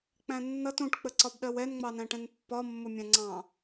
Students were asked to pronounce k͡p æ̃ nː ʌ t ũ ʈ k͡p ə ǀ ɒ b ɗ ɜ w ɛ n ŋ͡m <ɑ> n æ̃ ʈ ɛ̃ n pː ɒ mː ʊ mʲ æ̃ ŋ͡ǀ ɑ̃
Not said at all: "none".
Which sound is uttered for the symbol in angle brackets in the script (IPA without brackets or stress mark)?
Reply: ɑ